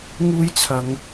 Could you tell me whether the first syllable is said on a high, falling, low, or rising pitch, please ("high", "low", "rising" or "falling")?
high